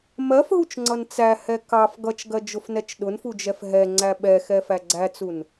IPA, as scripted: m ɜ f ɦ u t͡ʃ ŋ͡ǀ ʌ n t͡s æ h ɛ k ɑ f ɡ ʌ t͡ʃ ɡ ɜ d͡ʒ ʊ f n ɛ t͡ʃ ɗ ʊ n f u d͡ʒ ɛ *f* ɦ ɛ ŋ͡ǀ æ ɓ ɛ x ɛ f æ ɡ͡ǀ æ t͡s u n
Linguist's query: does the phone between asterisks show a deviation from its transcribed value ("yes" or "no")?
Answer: no